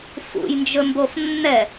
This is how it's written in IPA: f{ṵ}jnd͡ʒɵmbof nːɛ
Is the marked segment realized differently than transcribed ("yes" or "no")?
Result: no